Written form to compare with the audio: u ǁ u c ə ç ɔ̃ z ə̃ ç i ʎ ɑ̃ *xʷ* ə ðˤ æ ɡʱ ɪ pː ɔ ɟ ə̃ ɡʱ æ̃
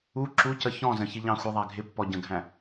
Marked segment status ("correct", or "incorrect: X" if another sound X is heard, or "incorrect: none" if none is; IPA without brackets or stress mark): correct